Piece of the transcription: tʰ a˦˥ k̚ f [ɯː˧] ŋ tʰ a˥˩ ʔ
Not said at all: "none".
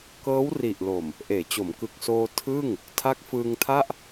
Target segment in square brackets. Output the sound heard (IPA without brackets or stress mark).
ɯː˧